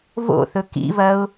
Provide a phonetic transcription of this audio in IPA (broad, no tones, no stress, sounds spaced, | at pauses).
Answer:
v o̰ θ ɵ k ḭ v ɐ ʊ̯